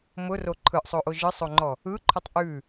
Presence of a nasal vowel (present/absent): absent